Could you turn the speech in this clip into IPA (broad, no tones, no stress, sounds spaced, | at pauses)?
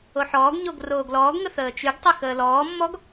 o ħ ɔː ɡ ɲ o ɡ r oː ɡ l ɔː ɡ ŋ ə θ əː t͡ʃ y ɡ tˤ ə x əː l ɔː mː ɔ ɡ